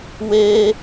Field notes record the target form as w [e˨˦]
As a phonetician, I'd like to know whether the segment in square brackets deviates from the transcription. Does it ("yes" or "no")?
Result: yes